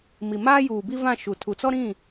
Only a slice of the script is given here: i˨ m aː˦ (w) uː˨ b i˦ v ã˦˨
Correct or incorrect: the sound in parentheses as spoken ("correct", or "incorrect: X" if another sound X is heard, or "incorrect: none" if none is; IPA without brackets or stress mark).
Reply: incorrect: j